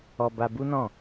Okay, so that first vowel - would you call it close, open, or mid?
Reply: mid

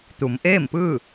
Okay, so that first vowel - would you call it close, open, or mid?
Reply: close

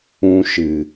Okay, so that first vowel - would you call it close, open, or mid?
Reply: close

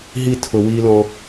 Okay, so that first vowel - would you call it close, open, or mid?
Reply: close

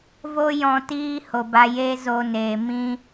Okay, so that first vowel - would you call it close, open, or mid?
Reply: mid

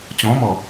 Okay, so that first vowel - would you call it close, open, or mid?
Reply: mid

